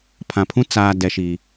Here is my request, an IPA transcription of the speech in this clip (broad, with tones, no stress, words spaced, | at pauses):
pʰã˨pʰũ˦ t͡saː˦ dɛ˦ʃi˦